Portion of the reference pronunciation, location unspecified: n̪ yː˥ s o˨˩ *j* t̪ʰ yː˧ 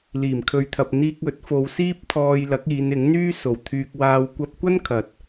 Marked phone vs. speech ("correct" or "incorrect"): incorrect